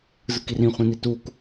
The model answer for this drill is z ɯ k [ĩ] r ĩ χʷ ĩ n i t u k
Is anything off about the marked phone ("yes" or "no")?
yes